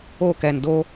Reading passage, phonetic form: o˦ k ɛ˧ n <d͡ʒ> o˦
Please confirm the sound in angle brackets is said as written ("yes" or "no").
no